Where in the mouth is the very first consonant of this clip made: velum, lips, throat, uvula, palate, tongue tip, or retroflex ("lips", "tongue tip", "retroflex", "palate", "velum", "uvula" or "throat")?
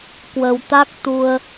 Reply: velum